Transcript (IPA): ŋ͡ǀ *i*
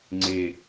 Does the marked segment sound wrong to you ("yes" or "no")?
yes